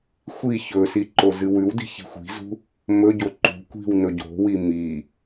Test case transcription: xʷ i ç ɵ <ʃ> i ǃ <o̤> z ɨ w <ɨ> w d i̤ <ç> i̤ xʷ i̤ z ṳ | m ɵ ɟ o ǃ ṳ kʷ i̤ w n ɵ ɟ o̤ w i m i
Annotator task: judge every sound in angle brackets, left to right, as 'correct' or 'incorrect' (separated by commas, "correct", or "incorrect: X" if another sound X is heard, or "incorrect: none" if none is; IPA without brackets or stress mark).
incorrect: s, incorrect: o, incorrect: ʉ, correct